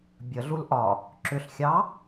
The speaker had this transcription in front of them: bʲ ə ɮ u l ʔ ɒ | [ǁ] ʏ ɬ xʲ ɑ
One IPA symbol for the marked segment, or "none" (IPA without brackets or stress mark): ǁ